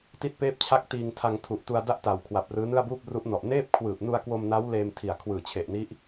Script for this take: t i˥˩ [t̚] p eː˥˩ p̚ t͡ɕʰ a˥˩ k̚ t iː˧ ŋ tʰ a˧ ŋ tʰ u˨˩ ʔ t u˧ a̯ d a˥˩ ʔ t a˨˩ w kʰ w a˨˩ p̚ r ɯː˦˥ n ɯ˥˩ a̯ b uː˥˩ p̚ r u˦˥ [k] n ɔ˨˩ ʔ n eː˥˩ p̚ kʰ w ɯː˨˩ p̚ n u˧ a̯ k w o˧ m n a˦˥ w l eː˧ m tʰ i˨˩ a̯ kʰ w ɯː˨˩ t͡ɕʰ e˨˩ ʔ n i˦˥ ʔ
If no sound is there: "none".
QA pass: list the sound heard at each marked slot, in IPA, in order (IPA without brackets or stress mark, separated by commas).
t̚, ʔ